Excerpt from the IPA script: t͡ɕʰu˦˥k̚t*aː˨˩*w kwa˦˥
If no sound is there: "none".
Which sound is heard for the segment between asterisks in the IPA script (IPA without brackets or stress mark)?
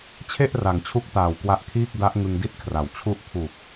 aː˨˩